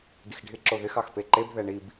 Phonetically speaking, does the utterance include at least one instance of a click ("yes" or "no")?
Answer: yes